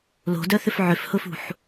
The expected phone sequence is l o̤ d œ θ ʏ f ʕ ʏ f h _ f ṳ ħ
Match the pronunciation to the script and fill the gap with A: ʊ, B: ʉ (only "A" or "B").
A